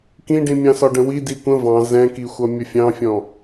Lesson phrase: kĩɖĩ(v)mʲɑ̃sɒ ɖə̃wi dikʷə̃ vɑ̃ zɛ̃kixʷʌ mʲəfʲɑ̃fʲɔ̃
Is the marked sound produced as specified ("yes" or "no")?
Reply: no